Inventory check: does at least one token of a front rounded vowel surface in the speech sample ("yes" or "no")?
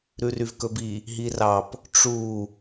yes